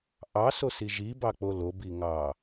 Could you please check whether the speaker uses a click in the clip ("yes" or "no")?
no